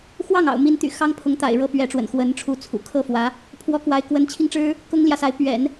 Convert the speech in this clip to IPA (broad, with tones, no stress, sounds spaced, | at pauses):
x w ɑ˥˩ ŋ ɑ̰˨˩ ʊ̯ m i˧˥ n t̪ y̰˨˩ x ɑ˥ ŋ pʰ ʊ˧˥ ŋ t̪ a̰˨˩ ɪ̯ ɻ ɤ˥ p ɥ ɛ˧˥ ʈ͡ʂ w ə̰˨˩ n x w ə˧˥ n ʈ͡ʂʰ u˧˥ t͡sʰ ṵ˨˩ kʰ ɤ˥ f w ä˧˥ | pʰ w ɔ˥ k w a˧˥ ɪ̯ k w ə˧˥ n t͡ɕʰ i˧ ŋ ʈ͡ʂ ɻ̩˥ | k ʊ˥ ŋ l j ä˨ s a˧˥ ɪ̯ p ɥ ɛ̰˨˩˦ n